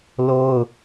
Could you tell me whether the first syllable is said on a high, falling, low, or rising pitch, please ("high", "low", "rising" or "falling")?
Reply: high